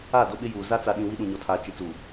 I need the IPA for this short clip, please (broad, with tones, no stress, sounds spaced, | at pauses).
aː˦˨ d o˦ ɓ ɪ˦ j uː˨ z a˦ t͡s a˨ ɗ ĩ˨ w i˦ ɗ ũ˨ ɲ ɔ˨ tʰ aː˨ t͡ʃ i˨ t͡s uː˨